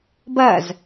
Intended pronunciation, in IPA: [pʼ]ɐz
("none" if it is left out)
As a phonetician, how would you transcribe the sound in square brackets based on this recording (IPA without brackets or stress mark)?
b